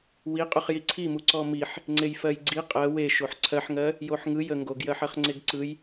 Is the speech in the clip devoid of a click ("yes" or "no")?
no